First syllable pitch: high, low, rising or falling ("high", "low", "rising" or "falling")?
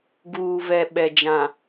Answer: low